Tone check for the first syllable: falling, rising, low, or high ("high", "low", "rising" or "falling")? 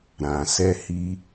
low